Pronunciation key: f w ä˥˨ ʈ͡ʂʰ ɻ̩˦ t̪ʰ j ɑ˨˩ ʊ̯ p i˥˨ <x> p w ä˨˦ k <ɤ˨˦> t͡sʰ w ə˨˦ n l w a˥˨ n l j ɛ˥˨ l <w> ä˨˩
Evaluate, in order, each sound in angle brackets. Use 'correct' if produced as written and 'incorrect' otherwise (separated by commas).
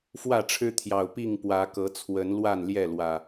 incorrect, correct, correct